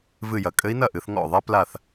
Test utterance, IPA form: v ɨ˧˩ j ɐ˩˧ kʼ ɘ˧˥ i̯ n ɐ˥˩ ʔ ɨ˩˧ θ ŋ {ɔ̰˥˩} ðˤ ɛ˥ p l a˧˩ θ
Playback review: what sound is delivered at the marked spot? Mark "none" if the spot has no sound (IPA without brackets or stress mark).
ɔ̰˥˩